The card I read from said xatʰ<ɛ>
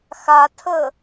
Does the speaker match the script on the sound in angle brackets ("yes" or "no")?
no